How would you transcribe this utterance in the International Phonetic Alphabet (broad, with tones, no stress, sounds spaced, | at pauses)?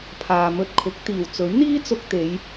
pʰ aː˨ m ɵ˧ t̚ kʰ ʊ˨˥ k̚ t̪ iː˨˩ w t͡s ɵ˨˥ ɥ n̪ iː˥ t͡s ʊ˧ k̚ t̪ e˨˧ j